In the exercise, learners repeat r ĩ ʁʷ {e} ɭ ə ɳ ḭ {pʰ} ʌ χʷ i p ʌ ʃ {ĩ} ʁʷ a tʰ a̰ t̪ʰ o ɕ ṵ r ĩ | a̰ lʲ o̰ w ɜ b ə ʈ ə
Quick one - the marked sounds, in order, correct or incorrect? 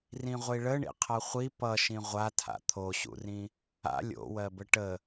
incorrect: i, incorrect: qʰ, correct

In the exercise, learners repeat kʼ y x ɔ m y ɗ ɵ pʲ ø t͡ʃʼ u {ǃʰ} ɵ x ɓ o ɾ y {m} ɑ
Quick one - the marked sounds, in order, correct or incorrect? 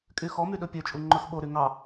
incorrect: ŋ͡ǃ, incorrect: ŋ

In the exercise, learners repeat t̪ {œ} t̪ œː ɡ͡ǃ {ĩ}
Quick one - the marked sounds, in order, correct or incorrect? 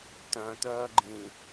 incorrect: œ̃, correct

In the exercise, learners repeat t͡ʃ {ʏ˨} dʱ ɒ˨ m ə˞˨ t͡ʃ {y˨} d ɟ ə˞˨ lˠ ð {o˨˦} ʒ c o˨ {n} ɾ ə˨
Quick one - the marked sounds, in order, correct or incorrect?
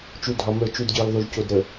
incorrect: u˨, incorrect: u˨, incorrect: o˨, incorrect: d

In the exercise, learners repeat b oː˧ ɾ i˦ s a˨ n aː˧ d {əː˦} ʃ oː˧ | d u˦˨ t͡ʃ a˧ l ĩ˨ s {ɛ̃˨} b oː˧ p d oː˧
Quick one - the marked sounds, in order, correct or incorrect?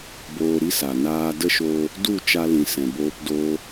incorrect: ə˦, correct

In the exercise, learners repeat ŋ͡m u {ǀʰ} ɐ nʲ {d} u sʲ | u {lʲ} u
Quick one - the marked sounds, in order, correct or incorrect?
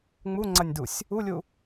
incorrect: ŋ͡ǀ, correct, correct

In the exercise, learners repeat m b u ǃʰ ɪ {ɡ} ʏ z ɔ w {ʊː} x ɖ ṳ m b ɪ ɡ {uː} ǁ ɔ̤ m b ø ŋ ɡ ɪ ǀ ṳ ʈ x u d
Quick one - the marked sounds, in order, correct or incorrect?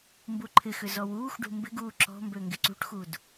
incorrect: x, incorrect: uː, correct

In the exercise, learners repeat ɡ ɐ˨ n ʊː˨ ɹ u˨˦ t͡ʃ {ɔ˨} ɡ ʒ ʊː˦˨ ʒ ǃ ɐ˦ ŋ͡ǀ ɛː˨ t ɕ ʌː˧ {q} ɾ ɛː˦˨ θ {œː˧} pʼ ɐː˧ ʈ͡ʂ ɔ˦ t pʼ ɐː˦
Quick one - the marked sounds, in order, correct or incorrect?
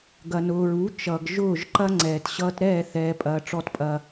incorrect: ʌ˨, incorrect: t, incorrect: ɛː˧

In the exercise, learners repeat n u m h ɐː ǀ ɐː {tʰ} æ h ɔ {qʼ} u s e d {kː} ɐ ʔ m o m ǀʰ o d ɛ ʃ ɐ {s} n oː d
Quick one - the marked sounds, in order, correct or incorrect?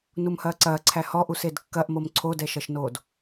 incorrect: ǀʰ, incorrect: ʔ, correct, incorrect: ʃ

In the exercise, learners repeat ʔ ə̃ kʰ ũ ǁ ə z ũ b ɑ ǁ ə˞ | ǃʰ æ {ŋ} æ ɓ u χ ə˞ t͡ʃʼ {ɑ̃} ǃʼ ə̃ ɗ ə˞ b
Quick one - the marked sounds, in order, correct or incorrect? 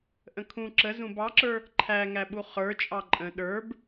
correct, incorrect: ɑ

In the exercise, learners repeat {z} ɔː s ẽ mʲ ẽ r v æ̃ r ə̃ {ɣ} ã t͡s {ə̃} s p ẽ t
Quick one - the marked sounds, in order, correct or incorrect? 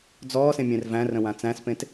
incorrect: d͡z, incorrect: w, incorrect: æ̃

